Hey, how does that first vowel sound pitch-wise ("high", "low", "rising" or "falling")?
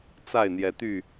falling